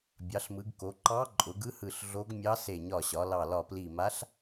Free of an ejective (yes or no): no